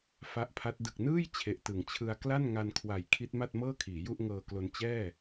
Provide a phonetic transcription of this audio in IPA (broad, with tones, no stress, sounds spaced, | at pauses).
f a˦˥ ʔ pʰ a˦˥ t̚ d ɯ˨˩ k̚ n ɯː˥˩ j t͡ɕʰ e˨˩ ʔ t ɯ˩˦ ŋ t͡ɕʰ ɯ˧ a̯ k l a˥˩ n ŋ a˧ n kʰ w a˨˩ j kʰ i˦˥ t̚ m a˥˩ t̚ m ɤː˥˩ kʰ iː˩˦ j u˥˩ ʔ ŋ ɤː˧ k l o˧ n t͡ɕ ɛː˥˩